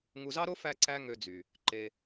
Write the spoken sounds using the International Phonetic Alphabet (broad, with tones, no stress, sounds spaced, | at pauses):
ŋ u˧ z ɑ˥ ɾ o˥ f æ˥ ǀ æ˥ ŋ ø˧ d͡z y˩ | ǃ e˧